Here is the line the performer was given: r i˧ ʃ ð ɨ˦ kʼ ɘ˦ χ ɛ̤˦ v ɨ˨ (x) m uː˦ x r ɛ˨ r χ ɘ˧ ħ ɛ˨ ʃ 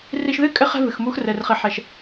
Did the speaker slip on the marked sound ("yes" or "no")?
no